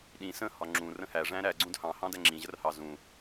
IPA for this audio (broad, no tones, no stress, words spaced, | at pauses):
ɗĩ sə̃hɒ ŋ͡ǁũ rə̃hæ ʐæ̃ɾæ ɡ͡ǀũdhɑ̃hɑ̃dæ ŋ͡ǁĩʑərhɑ zũ